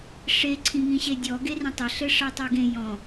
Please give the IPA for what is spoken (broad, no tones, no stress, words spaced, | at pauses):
ʂe ǀʰĩŋĩɕedʲɔ ɡerẽtˤɘɬɘ ʂɜtˤeɡẽ jɔ̃